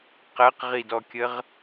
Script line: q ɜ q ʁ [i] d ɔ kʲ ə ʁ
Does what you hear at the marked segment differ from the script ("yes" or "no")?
no